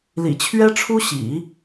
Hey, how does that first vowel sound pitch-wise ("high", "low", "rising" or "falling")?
low